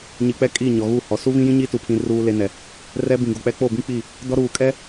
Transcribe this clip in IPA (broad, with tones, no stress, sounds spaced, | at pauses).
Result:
ɲ i˨ k͡p ɛ˦ kʼ i˦˨ ɲ ɔ˨ ɣ u˦˨ h ɔ˨ s u˦ β ĩ˦ j ĩ˦ ɲ i˦ t u˨ pʰ ĩ˨ r uː˦ l e˦ n ɛ˨ | r ɛ˦ b ĩ˨ ɡ o˨ k͡p ɛ˦ k͡p o˦˨ b ĩ˦ k͡p i˦˨ | d ɔ˦ ɾ uː˨ kʼ ɛ˦